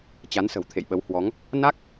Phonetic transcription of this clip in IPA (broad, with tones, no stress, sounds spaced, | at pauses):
t͡ɕ a˨˦ n s ə̤˨˩ w t̪ʰ ḛ˧˨ j ɓ ə˨˦ w h w ɔ˨˦ ŋ | n a˦˥ k̚